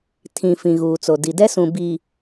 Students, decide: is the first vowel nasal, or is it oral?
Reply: nasal